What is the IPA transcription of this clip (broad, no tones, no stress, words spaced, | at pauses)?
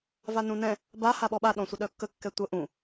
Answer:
vanũnɛ̃ | ba haɓɔɓa ɗɔ̃sʷəɗœkːə kːɛtʷə ʔũ